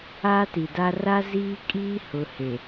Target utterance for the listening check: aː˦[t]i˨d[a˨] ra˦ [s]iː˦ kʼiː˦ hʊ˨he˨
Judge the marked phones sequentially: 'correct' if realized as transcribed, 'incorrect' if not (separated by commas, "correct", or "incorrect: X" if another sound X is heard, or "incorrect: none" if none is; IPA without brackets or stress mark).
correct, incorrect: a˦, incorrect: z